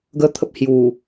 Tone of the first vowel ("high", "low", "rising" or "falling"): high